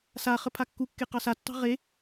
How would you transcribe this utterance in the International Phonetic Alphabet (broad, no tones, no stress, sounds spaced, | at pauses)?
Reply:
s a χ ə pʰ a kː u kː e q ɑ s a tː ɑ̤ ʁ e